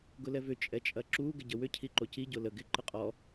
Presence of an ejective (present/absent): present